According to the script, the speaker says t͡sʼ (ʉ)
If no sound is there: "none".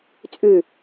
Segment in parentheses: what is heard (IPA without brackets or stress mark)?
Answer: ʉ